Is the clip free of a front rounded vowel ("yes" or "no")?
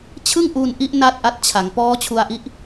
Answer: yes